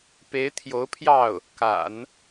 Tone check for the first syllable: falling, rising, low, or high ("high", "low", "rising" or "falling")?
rising